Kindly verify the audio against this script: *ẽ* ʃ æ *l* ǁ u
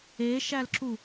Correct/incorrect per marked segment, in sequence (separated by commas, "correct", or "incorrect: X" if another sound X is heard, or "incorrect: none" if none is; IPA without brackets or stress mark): incorrect: e, correct